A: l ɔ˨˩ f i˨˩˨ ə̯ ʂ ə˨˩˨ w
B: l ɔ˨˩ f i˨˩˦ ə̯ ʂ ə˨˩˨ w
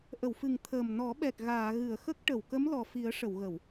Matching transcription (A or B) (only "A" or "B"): B